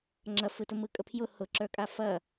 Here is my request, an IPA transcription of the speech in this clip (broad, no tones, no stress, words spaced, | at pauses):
ŋ͡ǁɐfɯtʊ mɯkʼəpʰjʊ hʊǁə˞kʼa fɐ